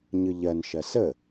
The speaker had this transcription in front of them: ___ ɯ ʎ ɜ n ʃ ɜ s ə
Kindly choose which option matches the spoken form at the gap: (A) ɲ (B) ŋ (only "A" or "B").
A